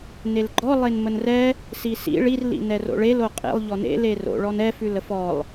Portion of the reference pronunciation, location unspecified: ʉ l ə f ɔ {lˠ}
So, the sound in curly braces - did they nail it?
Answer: yes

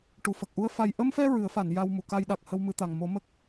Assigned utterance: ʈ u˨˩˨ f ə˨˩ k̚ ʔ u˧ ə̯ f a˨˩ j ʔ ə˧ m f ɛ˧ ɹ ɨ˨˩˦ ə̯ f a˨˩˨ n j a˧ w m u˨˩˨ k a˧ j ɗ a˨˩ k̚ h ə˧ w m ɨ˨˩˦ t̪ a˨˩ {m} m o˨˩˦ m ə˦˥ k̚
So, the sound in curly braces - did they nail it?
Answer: no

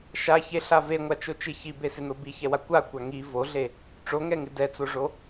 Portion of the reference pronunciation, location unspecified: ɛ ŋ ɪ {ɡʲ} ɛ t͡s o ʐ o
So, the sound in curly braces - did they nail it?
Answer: no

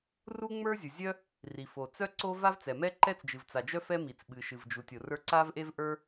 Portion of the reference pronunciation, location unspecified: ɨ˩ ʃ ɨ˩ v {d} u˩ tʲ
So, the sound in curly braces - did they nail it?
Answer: no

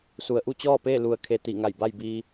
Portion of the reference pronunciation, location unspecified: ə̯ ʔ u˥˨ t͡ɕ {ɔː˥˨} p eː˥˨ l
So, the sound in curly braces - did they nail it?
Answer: yes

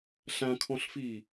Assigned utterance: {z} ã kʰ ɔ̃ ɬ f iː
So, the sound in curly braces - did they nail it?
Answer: no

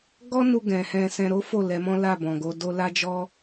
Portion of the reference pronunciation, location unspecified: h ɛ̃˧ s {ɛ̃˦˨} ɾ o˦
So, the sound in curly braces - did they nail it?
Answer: no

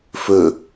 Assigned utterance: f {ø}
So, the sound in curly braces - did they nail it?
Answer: yes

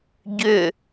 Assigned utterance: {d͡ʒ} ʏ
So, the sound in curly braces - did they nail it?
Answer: no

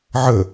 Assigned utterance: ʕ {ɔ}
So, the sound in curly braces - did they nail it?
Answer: no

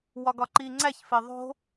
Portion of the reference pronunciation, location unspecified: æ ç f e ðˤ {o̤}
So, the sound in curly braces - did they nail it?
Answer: yes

